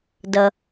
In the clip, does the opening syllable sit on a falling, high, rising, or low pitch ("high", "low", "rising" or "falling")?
low